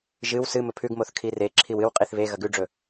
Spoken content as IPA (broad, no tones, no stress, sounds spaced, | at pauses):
ʒ ɨ w s ɨ m ɵ pʰ ʉ ɡ m o θ kʰ i r e ǁʰ i w ɨ w qʼ i θ β e ɣ ɐ ɡ ʉ ɖ͡ʐ ɵ